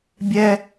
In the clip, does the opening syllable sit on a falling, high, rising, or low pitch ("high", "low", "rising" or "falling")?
high